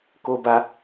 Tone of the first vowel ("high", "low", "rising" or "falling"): high